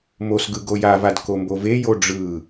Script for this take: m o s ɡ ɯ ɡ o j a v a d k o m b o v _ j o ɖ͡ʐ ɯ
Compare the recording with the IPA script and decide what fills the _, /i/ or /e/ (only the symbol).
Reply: e